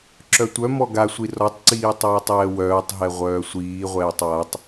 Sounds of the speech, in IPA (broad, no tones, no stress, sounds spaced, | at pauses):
ǁ œ tʷ œ m ɔ ɡ a sʷ i r ɔ tˤ ǀ iː tˤ œː tˤ ɛː w œː tˤ ɦ ɛ ʁʷ œː sʷ iː ʁʷ ɛː tˤ w a tˤ